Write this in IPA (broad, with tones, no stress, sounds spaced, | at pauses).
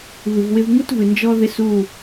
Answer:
β ɨ˨ v w ɪ˦ v ŋ u˦ t v ɨ˨ n d͡ʒ ɔ˦ ð ɪ˦ s u˦˨